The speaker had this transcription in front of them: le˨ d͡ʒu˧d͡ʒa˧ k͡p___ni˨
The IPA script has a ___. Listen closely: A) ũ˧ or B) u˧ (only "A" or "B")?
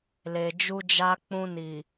A